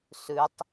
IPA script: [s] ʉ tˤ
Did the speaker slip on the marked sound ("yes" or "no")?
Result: no